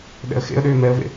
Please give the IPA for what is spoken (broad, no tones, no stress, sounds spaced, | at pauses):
ɗ ɛ̰ ə̯ x ḛ ə̯ ɗ ʏː m ɛ ə̯ v ḛ